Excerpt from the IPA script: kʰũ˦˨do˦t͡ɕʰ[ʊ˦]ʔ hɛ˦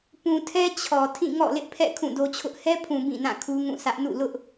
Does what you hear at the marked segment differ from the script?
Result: no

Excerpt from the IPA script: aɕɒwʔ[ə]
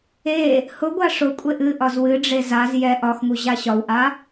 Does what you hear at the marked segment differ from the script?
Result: yes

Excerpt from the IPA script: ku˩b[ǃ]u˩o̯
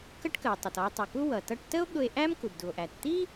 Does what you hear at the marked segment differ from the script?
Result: yes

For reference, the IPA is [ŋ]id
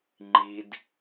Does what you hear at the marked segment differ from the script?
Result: yes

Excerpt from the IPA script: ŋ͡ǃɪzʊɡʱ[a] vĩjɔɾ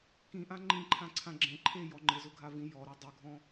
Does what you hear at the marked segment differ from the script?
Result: no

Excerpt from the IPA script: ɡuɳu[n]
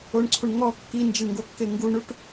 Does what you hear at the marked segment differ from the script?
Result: yes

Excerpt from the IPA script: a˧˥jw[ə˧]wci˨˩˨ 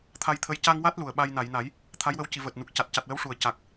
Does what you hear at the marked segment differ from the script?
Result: yes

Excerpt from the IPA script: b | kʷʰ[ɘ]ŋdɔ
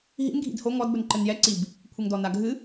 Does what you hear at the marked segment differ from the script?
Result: no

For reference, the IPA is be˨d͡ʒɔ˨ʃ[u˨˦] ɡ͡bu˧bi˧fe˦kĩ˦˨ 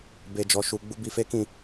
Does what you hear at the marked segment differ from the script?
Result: yes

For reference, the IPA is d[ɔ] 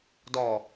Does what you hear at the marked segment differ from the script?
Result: no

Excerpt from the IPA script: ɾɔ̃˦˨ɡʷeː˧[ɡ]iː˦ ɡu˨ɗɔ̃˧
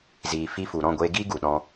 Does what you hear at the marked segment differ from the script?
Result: no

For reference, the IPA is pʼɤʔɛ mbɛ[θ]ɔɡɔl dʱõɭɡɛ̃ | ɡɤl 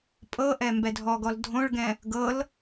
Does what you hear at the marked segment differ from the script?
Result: yes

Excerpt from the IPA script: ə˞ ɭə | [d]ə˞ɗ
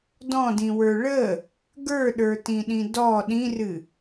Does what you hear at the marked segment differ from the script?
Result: yes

